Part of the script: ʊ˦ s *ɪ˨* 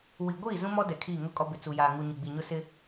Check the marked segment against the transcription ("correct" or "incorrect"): incorrect